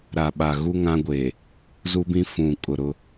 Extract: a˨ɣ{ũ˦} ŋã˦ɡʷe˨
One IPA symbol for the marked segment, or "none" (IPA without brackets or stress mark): u˦